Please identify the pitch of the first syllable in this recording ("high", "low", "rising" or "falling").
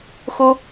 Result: high